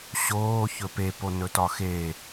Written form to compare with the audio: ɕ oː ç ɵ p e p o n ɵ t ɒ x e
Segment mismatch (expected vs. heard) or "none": none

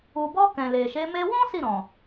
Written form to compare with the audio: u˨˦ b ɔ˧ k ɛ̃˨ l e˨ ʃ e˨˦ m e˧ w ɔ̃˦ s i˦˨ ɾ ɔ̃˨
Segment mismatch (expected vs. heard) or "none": u˨˦ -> u˨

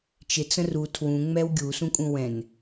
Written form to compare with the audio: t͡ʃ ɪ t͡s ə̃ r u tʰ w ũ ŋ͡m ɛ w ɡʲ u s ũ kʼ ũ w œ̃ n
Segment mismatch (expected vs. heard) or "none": œ̃ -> ɛ̃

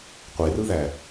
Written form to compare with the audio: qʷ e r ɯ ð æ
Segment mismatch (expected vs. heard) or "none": none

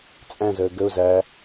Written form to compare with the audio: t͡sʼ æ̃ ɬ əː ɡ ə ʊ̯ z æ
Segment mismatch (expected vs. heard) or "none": ɬ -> z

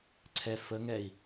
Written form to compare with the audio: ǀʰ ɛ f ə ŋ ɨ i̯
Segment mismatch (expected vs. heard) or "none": ɨ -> ɛ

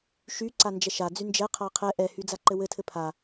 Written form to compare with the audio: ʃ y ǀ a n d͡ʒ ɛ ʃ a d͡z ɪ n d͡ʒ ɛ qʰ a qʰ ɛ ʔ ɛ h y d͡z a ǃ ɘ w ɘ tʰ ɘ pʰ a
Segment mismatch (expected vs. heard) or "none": ɪ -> y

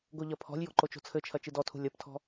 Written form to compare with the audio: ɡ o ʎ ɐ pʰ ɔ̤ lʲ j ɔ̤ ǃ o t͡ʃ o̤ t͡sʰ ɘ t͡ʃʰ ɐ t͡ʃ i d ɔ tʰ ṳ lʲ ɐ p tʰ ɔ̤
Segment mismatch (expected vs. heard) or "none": none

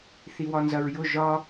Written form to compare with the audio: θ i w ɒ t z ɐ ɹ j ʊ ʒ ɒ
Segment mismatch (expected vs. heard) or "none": t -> n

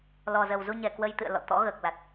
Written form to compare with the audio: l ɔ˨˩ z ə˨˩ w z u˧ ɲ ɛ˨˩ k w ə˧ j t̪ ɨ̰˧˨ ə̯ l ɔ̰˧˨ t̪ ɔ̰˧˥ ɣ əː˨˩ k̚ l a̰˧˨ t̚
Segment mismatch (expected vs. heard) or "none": a̰˧˨ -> a˨˩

